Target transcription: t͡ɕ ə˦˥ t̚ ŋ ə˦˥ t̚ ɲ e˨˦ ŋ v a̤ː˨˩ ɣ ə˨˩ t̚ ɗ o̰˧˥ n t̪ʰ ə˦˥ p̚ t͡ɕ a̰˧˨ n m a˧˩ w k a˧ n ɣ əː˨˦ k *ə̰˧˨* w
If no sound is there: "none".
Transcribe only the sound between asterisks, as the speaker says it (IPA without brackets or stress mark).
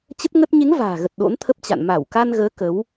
ə˨˦